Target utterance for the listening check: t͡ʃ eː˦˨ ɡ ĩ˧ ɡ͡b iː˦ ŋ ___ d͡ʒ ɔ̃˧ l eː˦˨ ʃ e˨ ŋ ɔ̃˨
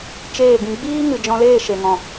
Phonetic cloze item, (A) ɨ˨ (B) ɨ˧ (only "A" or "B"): A